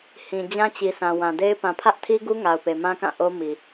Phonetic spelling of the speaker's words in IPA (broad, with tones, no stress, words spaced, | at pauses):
hĩ˨d͡ʑã˦t͡ɕi˨sã˨ wã˨de˦ɪ̯ pã˨pʰä˦ʔtʰi˦ɡu˦ ŋa˨ʊ̯pe˨mã˦kã˦˨ ʔo˦mi˨